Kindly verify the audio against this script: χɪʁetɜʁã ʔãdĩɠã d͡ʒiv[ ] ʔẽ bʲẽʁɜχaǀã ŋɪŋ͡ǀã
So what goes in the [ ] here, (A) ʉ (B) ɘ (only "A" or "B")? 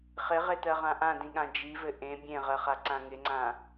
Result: B